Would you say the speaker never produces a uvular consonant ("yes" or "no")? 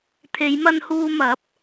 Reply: yes